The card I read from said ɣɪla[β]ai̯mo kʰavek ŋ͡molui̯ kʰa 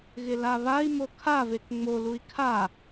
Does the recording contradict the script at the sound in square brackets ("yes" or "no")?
no